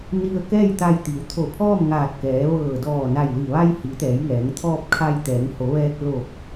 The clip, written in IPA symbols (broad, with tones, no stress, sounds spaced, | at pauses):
n i˧ ə̯ k ɛː˥˨ j t̪ a˧ j t̪ i˩˧ w t̪ʰ o˧˩ pʰ ɔː˥˨ m ŋ aː˧˩ t̚ k ɛː˩˧ ʋ ɤː˧˩ d ɔː˧˩ n a˧˩ j l i˧˩ ʋ a˧ j h i˩˧ t̪ ɛː˩˧ j ŋ ɛː˩˧ ŋ t̪ʰ ɔː˧ p̚ kʰ a˧ j t̪ ɛː˩˧ ŋ h o˩˧ ʋ ɛː˧ k̚ l o˧˩ p̚